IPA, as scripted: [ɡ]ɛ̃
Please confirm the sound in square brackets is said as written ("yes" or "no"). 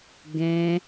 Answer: yes